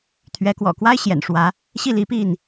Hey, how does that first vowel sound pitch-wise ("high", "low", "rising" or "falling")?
rising